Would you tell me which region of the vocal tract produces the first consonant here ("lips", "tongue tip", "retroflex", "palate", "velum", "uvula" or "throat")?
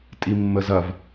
tongue tip